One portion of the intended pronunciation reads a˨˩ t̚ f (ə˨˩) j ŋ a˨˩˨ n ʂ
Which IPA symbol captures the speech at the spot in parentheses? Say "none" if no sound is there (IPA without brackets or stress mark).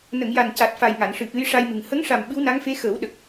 a˨˩